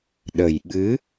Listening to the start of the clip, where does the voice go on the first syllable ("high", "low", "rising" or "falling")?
low